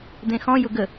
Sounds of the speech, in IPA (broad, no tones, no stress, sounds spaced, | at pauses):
d̪ ẽ x ɔ̃ j ʊ ɡ ə